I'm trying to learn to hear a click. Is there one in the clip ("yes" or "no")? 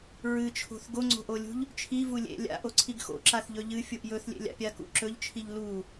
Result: yes